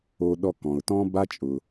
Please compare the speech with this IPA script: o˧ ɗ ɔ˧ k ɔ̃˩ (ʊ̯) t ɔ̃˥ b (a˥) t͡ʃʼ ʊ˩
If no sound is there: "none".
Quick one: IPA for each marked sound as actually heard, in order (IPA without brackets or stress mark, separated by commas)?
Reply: ʊ̯, a˥